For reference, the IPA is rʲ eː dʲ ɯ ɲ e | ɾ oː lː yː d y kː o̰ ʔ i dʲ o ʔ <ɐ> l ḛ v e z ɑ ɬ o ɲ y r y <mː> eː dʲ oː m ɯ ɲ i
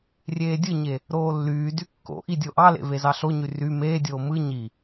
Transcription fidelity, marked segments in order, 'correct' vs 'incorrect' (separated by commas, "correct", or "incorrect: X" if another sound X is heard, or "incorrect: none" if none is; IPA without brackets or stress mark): incorrect: ɑ, incorrect: m